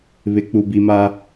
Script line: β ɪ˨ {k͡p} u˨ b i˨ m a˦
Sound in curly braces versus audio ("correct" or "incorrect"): correct